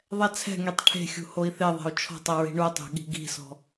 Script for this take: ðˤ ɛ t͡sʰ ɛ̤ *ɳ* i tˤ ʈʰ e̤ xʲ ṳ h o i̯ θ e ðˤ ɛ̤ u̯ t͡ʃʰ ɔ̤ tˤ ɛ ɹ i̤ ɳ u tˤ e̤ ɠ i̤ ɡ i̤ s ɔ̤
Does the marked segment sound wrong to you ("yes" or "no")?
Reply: yes